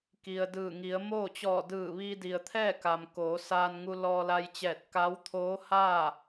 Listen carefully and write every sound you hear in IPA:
k i˩ ə̯ d ɯː˧˩ ŋ i˩˧ ə̯ m oː˥˨ t͡ɕ ɔː˧˩ d ɯː˧˩ ʋ i˧ d i˩ ə̯ t̪ʰ ɛː˥˨ k a˩ m k oː˩˧ s aː˧ n ŋ u˧ l ɔː˧ l a˧ j t͡ɕ ɛː˧˩ t̚ k a˧˥ w t̪ʰ oː˧˥ h aː˥˨

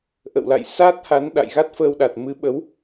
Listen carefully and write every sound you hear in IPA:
ʔ ə̰˧˨ w l a̰˧˨ j s a˦˥ t̚ h a˨˦ n ɗ a̰˧˨ j ɣ a˦˥ t̚ f əː˧ w ɗ a˨˩ t̚ m ɨ˨˦ ɓ ə˨˦ w

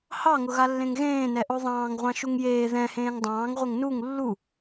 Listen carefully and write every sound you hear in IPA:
h ɑ ŋ ʊ ɣ a lː ẽ ŋ ɣ ẽː n ɛ ʔ o ðˤ ɑ̃ː ŋ ʁʷ ɑ̃ ʃ u ŋ j eː ð ɛ̃ h ẽː ŋ dˤ ɑ̃ː ŋ ʁʷ e ŋ n u ŋ lː u

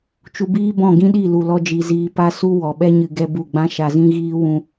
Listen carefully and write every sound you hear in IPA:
t͡ʃ u˧ b iː˦ b ɔ̃˦˨ ɡ ĩ˦ ɗ i˦˨ l u˨ l ɔ˧ d͡ʒ i˨ z iː˧ p a˦ s u˦ w ɔ˨ ɓ ɛ˦ ɲ ɨ˧ ɡ ɛ˦ b u˦˨ ɡ͡b ã˦ ʃ a˧ z ĩ˦ ɣ iː˦ w ũ˦

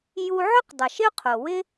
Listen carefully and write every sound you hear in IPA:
j u˧ ʕ ɵ˥ q dˤ ʌ˩ ʃ ɪ˥ ʊ̯ qʰ o˩ w ɪ˥

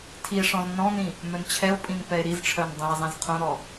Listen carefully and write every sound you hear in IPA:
tʰ i e̯ ʂ ɔ̃ z n ɔ̃ n ĩ | m œ n t͡ɕʰ ɛ o̯ pʼ ĩ n p ɛ e̯ ɾ i z ʈ͡ʂʰ œ n dˤ ĩ e̯ zˤ ĩ z qʰ õ ɾ ɔ

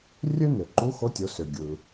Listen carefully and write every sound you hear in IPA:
rʲ ø˥ n ø˩ ǃ u˧˥ x o˧˥ tʲ o˩˧ s ø˩ ɡʲ ɯ˩

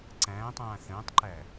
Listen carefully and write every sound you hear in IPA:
ǀ æ̃ː tˤ ãː θ ə̃ː tˤ ǃ æ

